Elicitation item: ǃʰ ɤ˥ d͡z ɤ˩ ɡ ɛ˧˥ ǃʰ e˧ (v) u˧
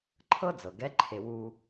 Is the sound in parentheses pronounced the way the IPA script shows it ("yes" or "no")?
no